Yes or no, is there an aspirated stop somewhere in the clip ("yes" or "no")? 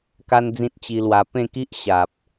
no